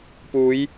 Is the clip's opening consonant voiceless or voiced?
voiceless